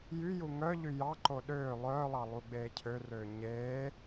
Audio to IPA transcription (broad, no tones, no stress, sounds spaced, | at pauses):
j y j u ŋ œ ʎ y j ɑ ǃ o ɗ øː lˠ œː lˠ ɑ lˠ u ɡ͡b eː cʰ ø r øː ɲ eː